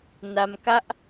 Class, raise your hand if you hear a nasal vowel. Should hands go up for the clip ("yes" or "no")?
no